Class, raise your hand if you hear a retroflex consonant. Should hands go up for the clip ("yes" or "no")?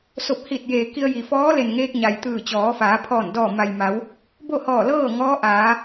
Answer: no